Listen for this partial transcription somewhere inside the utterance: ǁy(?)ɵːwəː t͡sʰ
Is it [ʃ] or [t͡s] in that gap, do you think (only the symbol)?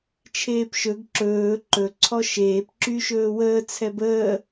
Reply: ʃ